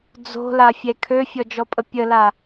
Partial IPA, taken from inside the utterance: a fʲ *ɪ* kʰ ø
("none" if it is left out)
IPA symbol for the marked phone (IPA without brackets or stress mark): ɛ